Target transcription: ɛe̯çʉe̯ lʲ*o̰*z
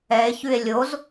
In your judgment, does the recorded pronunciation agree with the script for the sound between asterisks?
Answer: no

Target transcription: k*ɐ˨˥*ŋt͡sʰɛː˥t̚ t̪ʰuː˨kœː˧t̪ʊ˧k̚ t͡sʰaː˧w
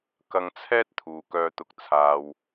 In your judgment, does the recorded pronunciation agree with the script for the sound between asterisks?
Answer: no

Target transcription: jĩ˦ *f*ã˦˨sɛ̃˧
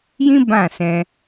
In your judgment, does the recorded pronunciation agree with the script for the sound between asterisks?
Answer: no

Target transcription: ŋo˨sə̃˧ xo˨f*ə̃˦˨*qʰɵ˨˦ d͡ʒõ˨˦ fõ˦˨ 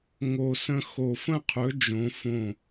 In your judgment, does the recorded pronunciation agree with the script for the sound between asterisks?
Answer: yes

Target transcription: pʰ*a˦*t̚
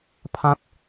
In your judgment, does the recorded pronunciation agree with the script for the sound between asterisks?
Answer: no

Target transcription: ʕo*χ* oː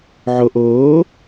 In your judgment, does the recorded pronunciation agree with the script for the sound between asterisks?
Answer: no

